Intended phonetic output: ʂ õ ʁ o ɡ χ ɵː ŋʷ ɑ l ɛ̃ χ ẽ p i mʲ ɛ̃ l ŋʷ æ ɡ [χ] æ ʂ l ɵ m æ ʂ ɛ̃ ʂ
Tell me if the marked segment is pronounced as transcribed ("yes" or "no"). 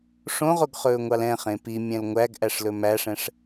no